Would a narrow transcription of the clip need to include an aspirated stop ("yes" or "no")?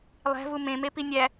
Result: no